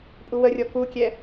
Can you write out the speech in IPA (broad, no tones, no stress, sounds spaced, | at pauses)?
pʼ u w ə rʲ ɔ k u kʲ ɛ